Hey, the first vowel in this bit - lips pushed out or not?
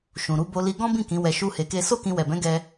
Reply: yes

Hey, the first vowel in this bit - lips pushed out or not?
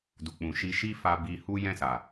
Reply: yes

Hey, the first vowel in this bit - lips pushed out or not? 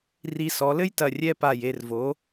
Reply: no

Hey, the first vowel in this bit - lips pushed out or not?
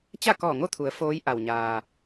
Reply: no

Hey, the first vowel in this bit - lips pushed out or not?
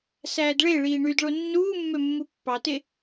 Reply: no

